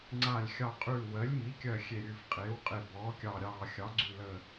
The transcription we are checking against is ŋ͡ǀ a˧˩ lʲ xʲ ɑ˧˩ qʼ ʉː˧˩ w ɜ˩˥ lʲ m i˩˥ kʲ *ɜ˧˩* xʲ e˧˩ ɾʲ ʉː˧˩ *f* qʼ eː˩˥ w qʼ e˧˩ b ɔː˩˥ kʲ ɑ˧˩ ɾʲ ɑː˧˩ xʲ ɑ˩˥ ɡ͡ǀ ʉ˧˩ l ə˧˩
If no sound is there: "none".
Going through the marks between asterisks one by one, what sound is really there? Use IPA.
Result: ɜ˧˩, f

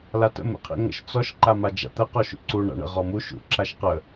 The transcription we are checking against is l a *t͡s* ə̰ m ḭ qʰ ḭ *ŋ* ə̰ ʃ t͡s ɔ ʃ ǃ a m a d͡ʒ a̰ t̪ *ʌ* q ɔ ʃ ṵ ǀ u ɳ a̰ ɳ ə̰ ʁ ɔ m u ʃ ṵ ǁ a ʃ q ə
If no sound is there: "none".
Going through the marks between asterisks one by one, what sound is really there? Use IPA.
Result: t, ŋ, ə

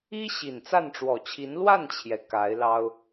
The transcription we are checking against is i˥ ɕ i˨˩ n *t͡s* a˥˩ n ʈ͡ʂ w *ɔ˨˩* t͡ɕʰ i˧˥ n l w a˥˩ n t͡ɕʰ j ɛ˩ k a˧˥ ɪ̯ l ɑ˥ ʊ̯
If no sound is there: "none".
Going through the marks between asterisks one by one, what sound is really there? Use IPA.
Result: t͡s, ɔ˨˩

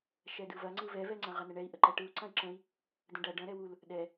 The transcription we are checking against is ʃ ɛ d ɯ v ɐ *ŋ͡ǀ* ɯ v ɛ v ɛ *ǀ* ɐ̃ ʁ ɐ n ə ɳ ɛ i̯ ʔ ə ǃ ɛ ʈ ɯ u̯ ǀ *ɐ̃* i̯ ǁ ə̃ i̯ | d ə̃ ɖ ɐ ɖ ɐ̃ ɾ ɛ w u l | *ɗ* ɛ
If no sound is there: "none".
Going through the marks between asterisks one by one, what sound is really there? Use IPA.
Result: ŋ͡ǀ, ŋ͡ǀ, ɐ̃, ɗ

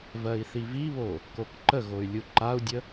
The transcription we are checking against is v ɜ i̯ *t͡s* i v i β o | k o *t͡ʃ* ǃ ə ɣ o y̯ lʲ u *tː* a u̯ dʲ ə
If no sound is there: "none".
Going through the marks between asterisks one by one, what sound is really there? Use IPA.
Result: θ, k, ǃ

